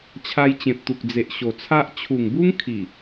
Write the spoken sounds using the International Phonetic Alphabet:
t͡ɕʰ a˧ j t͡ɕ ẽ˨ p̚ t̪ u˨ k̚ d͡z e˨ ʔ ɕ o˨˩ t͡sʰ a˦ ʔ t͡ɕʰ u˨˩ ŋ b u˦ ŋ kʰ i˨˩

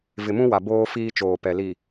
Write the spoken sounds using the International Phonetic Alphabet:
v ɪ˨ m ũ˦ w a˨ b oː˦ f iː˦ t͡ʃ oː˨ p ɛ˨ l i˨

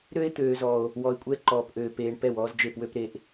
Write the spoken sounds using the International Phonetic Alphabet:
ɾ ø˦ e̯ t̪ øː˨ z ɔ˨ o̯ | w ɔ˨ e̯ kʷʼ ɛ˦ ǃ ɔː˨ p ʔ øː˨ p eː˨ ɳ p ɛ˦˨ w ɔː˦ z d͡ʒ e˦˨ p w ø˦ p ɾ e˨ ʔ

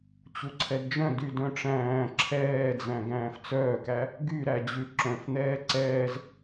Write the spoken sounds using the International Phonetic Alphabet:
t͡ɕ u ǀʰ ɛ d d͡ʒ œ̃ d y d œ̃ ʈ͡ʂ æ̃ː ǁʰ ɛː d͡z æ̃ ɡ æ̃ː f t͡s œː k æ | ɡ y ɾ æ d͡ʑ ʉ ǁ œ̃ f n̪ ɛː ǀ ɛː z

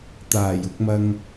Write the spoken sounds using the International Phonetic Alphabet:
t̪ aː˨˩ j ʊ˧ k̚ m ɐ˧ ŋ

